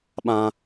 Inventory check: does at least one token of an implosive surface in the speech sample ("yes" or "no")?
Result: yes